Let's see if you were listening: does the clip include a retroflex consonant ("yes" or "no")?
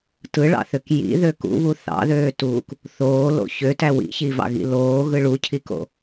yes